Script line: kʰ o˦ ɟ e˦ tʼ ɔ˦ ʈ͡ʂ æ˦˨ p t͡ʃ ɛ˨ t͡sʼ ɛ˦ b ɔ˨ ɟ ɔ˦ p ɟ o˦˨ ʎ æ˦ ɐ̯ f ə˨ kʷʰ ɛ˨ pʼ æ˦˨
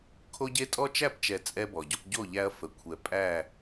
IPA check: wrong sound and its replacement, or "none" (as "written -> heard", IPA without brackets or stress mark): ʈ͡ʂ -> t͡ʃ